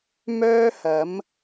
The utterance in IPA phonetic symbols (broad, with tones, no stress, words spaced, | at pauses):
mœː˥hɐ˨˥m